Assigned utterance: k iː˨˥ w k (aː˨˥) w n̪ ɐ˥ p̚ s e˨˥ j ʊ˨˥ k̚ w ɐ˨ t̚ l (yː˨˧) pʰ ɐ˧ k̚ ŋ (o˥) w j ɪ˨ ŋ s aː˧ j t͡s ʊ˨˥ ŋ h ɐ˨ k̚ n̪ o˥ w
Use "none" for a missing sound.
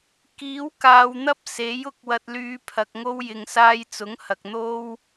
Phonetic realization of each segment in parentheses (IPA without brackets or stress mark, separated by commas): aː˨˧, yː˨˧, o˥